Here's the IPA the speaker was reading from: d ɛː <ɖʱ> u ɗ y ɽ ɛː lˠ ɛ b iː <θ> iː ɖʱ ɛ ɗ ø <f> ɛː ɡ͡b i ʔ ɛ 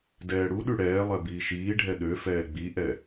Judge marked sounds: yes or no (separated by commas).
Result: no, no, yes